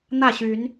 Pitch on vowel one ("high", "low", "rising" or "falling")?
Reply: falling